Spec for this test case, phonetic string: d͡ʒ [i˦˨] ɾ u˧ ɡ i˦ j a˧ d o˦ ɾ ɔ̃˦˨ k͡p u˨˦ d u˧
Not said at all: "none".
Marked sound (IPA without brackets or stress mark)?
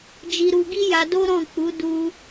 i˧